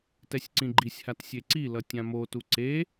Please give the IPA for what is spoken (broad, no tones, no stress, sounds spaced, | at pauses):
t ɛ sʲ ǀ ĩ ɡ͡ǃ i sʲ h a t sʲ e ǀ i l ʌ tʲ ã m o t u ǀ e